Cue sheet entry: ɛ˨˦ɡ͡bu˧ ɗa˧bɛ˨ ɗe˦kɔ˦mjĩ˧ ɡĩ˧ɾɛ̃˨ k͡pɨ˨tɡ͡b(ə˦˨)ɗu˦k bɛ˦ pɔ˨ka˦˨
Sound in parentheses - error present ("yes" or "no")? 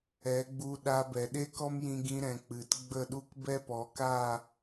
no